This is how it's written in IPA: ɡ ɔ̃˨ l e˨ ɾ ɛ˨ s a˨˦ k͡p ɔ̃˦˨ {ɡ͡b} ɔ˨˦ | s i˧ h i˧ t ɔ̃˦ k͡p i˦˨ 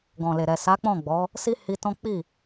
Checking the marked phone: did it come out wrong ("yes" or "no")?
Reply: no